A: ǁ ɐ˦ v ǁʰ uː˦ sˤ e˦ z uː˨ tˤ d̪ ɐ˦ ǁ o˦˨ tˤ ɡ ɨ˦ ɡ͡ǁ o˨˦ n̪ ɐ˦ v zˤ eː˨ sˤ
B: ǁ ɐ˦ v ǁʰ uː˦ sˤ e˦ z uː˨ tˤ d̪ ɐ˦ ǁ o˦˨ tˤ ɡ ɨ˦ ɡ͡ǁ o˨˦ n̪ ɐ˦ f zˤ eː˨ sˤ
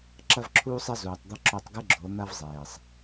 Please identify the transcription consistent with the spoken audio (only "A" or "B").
A